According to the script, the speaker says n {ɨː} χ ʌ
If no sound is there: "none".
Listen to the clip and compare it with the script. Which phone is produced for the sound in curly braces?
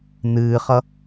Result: ɨː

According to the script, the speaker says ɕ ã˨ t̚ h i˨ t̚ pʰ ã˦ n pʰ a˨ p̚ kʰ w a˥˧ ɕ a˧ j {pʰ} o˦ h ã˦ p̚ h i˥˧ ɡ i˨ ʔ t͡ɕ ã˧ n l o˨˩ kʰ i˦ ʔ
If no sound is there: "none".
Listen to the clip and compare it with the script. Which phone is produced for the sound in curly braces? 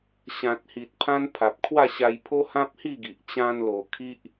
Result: pʰ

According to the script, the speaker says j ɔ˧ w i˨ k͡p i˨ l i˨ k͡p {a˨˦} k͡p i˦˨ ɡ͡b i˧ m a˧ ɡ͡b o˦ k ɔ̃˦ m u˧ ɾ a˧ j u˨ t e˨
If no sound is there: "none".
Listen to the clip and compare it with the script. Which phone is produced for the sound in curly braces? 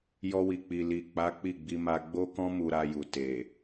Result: a˨˦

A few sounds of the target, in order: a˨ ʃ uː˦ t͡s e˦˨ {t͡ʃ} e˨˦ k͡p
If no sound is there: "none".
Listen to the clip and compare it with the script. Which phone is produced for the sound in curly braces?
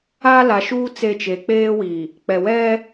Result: t͡ʃ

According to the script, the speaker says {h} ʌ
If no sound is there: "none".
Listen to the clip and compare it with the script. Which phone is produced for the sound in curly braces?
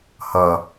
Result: h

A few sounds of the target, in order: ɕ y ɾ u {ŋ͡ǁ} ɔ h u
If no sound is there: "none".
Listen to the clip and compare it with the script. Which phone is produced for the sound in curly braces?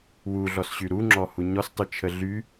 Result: ŋ͡ǁ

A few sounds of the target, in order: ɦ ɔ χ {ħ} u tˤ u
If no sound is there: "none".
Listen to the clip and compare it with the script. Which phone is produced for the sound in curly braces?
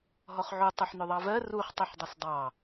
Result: ʕ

